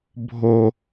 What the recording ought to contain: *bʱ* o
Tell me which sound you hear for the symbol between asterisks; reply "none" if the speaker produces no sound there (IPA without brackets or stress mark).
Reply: bʱ